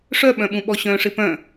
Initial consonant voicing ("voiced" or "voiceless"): voiceless